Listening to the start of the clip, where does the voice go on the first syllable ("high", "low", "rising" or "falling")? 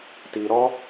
low